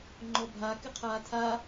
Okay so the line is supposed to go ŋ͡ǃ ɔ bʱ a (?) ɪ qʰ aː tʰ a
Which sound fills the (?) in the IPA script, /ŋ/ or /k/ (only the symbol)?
k